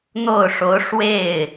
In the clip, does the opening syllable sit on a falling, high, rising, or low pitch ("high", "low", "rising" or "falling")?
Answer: falling